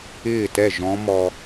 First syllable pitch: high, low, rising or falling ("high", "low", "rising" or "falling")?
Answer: falling